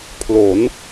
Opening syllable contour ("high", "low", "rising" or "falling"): rising